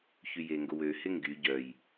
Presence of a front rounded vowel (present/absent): present